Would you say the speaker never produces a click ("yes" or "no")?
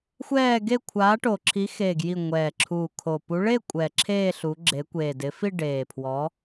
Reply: no